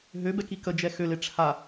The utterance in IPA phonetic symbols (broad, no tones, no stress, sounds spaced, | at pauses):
ɦ ø b ɛ k i k ə d͡ʒ ɛ x ø l e ʈ͡ʂʰ a